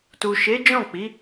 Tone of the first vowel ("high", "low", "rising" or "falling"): low